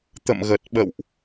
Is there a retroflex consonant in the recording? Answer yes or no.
no